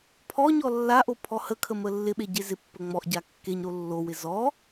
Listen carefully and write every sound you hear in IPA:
pʰɔɲɔ lːaʔo pʰɔhəkʰə məlːɪɓe ɟezɪpːə ŋ͡mɔʔɟa kːeɲɾo lːowɪ zɔ

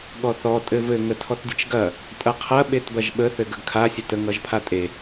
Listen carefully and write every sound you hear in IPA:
ɠɔθɔ tʼɘvɘ ŋətʰɔtdʲɘt͡ʃɡɐ | tʼɐqʰɐ ɓetbɐʒɓə θɘɡəɡkʰa sʲətə ŋʌʒpʰatʼe

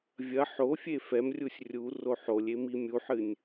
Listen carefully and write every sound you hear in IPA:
vʲɐ ħofʲe fɛmrʲusʲ rʲu roħolʲe mimʲuħɨnʲ

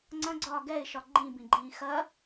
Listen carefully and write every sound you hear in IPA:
ŋ͡ǀɐ̃ɡ͡ǀɒː ɡɛɪ̯ʃɒ ɡ͡ǃĩbĩɡ͡ǃĩː xɐ

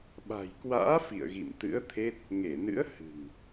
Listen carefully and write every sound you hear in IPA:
ɓa̤˨˩jkwa̰ː˧˥ fḭ˧˨ə̯ɣḭ˧˨mt̪ɨ̰˧˥ə̯t̪ʰe˦˥t̚ | ŋe˧˩nɨ̰˧˥ə̯ hɨ̤˨˩ŋ

